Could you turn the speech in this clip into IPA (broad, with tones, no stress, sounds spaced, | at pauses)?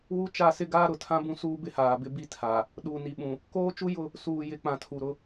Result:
w u˦ t͡ʃ a˦˨ s ɪ˦ ɡ aː˦ ɾ ʊ˨ tʰ ã˦ b ũ˦ s uː˦ b ɪ˦ h aː˨ b ɪ˦ b i˦ tʰ a˨ | ɗ uː˨ n i˨ ɓ ũ˨ | k oː˦ t͡ʃ u˦ j ʊ˦˨ | s uː˨ j ɪ˨˦ k͡p ã˨ tʰ u˨ ɾ ʊ˦